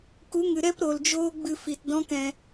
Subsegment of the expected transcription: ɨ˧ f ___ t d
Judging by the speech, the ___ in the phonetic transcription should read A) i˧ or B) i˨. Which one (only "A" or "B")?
B